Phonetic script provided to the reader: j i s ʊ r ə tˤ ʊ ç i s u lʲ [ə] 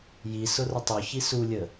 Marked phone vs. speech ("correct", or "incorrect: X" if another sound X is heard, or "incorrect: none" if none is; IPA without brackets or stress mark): correct